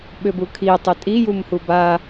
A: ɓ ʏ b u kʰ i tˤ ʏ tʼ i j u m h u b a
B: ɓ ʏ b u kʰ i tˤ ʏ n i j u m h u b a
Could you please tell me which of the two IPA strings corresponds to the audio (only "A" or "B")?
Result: A